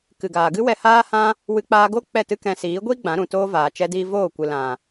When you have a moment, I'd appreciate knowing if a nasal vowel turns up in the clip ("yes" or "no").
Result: yes